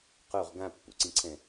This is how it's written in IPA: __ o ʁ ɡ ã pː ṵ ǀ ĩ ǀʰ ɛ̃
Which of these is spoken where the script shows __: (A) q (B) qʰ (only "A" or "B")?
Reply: A